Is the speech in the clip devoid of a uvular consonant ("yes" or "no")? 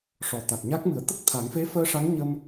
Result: yes